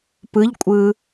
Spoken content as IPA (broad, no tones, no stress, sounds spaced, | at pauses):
p ɯ ʎ kʷʼ ɯ